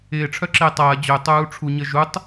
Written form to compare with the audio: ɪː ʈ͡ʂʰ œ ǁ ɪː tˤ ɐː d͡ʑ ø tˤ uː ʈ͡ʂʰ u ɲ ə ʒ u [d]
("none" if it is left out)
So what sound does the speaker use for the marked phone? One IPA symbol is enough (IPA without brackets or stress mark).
tˤ